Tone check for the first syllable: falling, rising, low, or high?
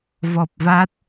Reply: low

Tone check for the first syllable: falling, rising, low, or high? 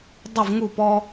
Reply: falling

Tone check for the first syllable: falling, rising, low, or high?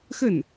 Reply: falling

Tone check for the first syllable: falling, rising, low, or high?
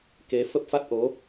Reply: rising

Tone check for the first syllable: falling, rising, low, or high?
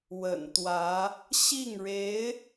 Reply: low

